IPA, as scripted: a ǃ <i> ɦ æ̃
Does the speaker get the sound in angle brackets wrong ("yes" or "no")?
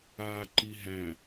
no